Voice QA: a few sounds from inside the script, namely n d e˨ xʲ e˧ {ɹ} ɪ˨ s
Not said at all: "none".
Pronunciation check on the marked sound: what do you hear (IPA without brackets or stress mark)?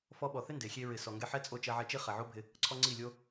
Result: ɹ